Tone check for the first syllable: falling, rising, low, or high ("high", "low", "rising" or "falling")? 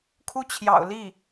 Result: falling